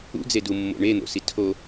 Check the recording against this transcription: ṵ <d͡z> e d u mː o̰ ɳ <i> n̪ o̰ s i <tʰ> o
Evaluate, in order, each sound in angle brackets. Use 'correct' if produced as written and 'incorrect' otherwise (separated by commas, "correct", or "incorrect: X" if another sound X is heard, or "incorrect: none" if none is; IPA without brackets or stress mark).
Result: correct, incorrect: e, correct